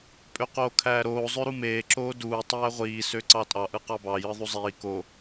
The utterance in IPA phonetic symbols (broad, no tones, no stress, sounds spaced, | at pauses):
pʼ ø q oː kʰ æː ɾ oː zˤ ø ɾ u m eː ǁ oː d uː tˤ æː ʁʷ iː s ø ǀ ɑ tʼ ɑ ʔ ɯ q ɑ b ɑ j ɯ ðˤ u zˤ iː k o